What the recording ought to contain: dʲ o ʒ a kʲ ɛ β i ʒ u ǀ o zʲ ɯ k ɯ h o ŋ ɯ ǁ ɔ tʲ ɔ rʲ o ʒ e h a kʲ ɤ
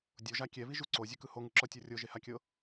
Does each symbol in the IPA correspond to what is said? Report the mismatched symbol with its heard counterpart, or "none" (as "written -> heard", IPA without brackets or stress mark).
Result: none